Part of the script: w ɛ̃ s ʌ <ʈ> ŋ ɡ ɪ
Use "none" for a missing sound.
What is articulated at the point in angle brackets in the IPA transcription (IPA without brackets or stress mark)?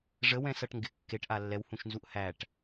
ʈ